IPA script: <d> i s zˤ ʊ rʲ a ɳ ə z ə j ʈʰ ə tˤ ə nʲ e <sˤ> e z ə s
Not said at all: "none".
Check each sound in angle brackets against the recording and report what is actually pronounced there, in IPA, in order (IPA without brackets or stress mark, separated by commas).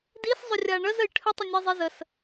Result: d, zˤ